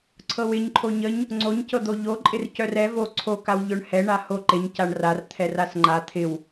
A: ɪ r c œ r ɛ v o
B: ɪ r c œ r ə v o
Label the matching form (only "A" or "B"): A